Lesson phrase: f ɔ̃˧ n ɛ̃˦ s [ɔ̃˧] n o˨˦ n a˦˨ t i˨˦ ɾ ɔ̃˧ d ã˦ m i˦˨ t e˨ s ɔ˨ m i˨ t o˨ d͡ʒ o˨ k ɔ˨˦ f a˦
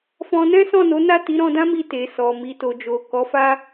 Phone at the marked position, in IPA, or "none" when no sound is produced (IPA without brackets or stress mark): ɔ̃˦˨